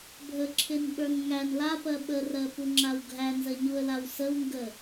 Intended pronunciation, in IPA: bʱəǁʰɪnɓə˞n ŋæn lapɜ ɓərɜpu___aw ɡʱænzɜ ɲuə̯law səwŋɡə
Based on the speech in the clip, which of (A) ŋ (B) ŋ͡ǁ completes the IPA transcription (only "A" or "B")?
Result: B